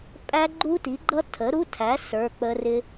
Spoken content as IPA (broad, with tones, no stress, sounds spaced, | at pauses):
pʼ æ˦˥ ɡ͡ǃ u˦˥ t i˨˥ ɡ͡ǃ ʌ˦˥ tʰ ə˨˥ ɾ u˧˥˧ tʰ æ˨˥ s ə˞˧˥˧ k͡p ə˦˥ r ɪ˦˥